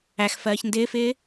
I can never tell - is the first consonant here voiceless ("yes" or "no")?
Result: yes